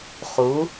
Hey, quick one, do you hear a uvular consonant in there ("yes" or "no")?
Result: yes